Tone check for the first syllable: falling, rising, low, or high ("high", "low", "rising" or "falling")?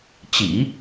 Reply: low